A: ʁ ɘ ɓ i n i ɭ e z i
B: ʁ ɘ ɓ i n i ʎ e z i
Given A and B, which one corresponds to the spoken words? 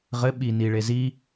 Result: A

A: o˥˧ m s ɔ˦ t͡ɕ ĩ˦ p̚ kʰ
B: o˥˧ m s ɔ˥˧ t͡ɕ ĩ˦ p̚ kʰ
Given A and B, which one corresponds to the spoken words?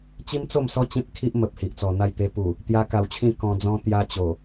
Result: A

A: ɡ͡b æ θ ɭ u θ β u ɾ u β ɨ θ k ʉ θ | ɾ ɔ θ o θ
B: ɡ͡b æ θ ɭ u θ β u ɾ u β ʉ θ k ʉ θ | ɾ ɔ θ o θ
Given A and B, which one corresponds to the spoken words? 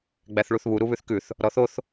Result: B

